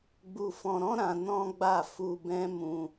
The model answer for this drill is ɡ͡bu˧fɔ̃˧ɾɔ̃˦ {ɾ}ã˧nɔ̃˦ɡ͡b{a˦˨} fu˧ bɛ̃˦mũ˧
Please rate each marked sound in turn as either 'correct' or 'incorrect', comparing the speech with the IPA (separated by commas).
correct, correct